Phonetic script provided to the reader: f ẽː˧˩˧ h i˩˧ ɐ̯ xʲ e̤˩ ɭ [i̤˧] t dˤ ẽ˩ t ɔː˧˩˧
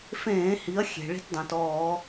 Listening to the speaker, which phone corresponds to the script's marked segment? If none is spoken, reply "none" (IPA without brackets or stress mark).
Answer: i̤˧